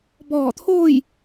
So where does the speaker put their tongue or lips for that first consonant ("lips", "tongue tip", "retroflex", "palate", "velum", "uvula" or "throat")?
lips